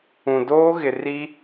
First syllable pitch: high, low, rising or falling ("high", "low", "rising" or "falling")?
low